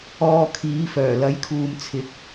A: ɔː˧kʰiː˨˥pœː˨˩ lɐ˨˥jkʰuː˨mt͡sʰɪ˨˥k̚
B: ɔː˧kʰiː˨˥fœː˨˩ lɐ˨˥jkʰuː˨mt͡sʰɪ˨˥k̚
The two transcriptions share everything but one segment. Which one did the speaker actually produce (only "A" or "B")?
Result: B